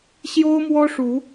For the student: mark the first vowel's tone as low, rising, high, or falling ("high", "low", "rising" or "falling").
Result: high